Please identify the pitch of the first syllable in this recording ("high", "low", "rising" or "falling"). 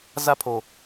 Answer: high